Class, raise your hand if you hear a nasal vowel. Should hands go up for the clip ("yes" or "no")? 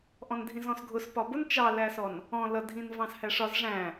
yes